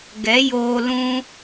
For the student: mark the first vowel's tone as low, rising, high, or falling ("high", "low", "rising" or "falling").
rising